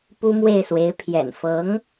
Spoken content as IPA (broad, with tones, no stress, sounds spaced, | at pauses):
p u˥ m w e˥˩ ɪ̯ s w e˧˥ ɪ̯ pʰ j ɛ̰˨˩ n f ɤ˧˥ ŋ